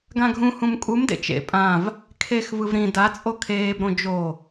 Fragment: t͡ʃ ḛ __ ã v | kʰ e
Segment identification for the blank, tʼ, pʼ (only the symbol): pʼ